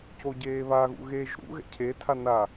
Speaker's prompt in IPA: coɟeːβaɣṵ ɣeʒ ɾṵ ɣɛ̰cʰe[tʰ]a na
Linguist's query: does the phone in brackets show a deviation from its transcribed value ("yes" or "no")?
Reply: no